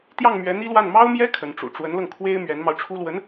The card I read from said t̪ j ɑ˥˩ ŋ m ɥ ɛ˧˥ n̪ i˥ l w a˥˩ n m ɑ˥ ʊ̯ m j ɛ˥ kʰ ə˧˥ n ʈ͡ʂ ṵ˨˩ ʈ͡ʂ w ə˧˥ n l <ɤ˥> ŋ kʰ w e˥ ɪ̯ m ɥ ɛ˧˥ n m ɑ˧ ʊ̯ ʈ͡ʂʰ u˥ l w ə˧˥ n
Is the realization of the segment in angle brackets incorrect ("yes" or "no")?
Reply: yes